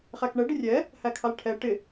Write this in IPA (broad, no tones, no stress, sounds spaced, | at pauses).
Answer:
χ æ k ɳ ɛ ɖ ɪ rʲ ɛ | h æ kʰ ɑ l ʈʰ ɛ ʈ ɪ